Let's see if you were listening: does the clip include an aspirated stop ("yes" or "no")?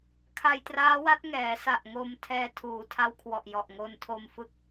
yes